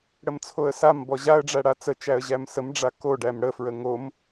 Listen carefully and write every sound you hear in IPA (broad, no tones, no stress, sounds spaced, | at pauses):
ɽ ə m t͡sʰ o ə̯ s a m b ɔ ʑ a ə̯ ɖ͡ʐ æ ɽ a t͡s ə t͡ʃ æ ə̯ ʑ æ m s ə m ɖ͡ʐ a k o ɖ æ m ɽ ə f ɹ ə ŋ o m